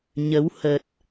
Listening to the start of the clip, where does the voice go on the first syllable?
rising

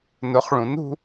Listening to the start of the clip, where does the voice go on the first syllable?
rising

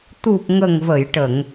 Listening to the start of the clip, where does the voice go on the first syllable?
low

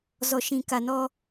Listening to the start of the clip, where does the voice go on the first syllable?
low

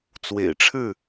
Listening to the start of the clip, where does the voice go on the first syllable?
low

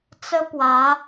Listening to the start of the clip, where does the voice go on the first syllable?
high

